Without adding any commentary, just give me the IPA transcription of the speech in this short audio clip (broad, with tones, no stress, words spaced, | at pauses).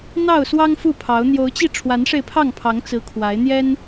n̪ɑ˥˨ʊ̯swɑ˦ŋ fu˥˨pʰɑ˨˦ʊ̯ n̪jo˨˦ʊ̯t͡ɕi˧ ʈ͡ʂʰwa˨˦nʂe˧ɪ̯pʰɑ˥˨ŋpʰɑ˨˦ŋ t͡sɹ̩˨˦ kʰwa˨˦ɪ̯n̪jɛ˦n